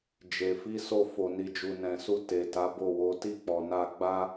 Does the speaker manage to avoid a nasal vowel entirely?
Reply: no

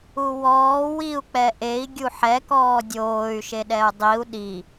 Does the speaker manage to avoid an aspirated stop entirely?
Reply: yes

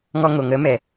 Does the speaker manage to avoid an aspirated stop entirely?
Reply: yes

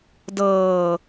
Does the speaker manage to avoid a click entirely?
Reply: yes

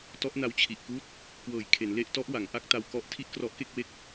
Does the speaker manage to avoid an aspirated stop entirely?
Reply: no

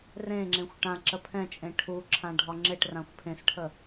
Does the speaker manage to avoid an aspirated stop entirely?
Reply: no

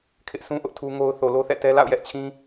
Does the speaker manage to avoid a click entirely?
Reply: yes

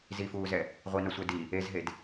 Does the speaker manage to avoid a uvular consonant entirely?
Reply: no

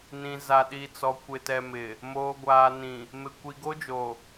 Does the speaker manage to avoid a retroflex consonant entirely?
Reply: yes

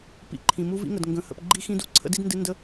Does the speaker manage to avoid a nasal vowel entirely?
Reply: no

